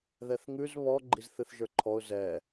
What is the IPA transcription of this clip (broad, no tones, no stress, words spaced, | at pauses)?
ðɛθŋʉz βɔ ɡ͡ǃizθɨθʒə˞ǃʰɔʊ̯ zɛ